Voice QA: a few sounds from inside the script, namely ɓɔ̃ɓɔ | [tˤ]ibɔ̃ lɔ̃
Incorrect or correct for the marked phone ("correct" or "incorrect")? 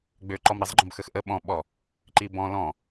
incorrect